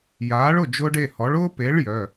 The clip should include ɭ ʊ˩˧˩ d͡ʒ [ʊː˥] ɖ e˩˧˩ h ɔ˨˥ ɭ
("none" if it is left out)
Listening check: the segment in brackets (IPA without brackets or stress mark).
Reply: ʊː˥